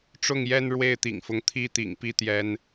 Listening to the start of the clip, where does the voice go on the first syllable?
falling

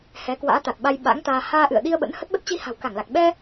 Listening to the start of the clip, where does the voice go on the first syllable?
rising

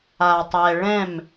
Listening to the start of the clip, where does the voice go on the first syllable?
low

